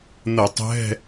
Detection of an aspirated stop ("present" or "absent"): absent